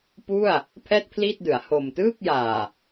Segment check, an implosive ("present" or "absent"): absent